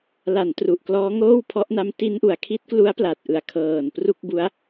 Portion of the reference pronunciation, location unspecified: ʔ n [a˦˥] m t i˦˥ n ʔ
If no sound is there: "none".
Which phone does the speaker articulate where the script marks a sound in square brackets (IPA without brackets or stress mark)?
a˦˥